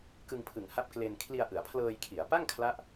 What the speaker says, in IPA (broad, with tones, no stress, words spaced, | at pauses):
kɯ˧ŋpʰɯ˨˩ŋ ha˦˥p̚ kle˧n kʰli˧a̯ʔɯ˩˦a̯pʰlɤː˧jkʰi˩˦a̯ pa˥˩ŋkʰla˦˥ʔ